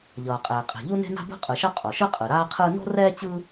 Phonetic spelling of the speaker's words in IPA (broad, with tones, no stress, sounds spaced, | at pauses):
ʎ ʌː˩ qʼ ɛː˩ qʼ e̤˩ ʎ u˥ n e̤˥ n a̤˥ b o̤˥ qʼ ɯ˩ ʃ ʌ˥ qʼ o˩ ʃ ɯ˥ qʼ ɯ˩ ɾ aː˥ qʰ ɯː˥ n o̤˥ r ɛː˥ t͡ɕ ɯː˥